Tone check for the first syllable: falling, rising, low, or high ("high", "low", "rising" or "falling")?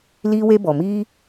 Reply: high